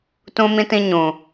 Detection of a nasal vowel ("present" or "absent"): present